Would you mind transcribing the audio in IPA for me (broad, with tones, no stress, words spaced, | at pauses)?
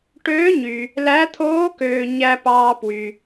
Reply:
ʈøː˧˥ɲy˨ | læ˧˥t̪ʰoː˧˥køː˨ ɲæ˨pɑː˨ pwy˨